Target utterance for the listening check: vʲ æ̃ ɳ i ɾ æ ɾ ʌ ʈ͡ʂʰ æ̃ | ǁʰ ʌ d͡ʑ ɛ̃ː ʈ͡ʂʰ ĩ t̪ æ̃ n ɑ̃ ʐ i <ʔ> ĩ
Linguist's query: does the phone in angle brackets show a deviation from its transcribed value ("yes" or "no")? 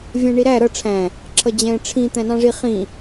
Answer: yes